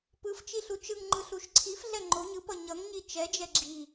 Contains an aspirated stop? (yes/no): yes